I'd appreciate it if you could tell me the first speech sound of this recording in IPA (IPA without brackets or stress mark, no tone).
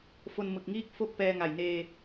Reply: f